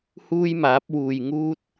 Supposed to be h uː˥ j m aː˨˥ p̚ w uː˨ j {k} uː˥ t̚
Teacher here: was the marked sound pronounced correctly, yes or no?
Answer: no